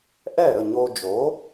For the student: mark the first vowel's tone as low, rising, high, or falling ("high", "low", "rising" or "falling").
falling